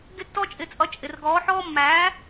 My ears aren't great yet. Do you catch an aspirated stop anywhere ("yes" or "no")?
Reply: no